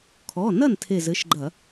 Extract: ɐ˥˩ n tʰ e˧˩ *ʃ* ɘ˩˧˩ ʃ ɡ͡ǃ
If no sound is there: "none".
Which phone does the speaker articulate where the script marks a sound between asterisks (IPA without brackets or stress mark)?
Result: z